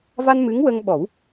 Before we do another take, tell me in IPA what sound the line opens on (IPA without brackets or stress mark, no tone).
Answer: v